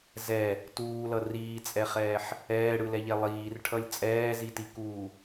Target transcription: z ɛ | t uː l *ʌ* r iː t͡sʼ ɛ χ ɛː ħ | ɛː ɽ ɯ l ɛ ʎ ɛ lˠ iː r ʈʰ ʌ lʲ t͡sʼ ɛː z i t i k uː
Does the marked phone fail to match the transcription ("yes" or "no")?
no